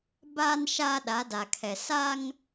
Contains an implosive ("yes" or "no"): yes